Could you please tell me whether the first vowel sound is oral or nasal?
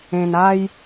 nasal